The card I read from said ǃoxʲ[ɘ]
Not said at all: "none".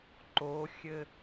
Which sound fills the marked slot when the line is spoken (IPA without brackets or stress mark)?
ɘ